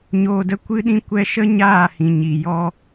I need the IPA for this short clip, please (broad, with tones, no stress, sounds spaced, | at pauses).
ɲ oː˧ d ə˦ kʷ ɨ˦ ɗ ĩ˦ kʷ ɛ˦ ʃ ə˦ ɲ aː˦˨ h ĩ˨ ɲ i˨ j ɔ˧